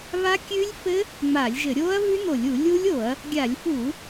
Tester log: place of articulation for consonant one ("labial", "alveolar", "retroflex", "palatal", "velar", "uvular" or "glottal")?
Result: labial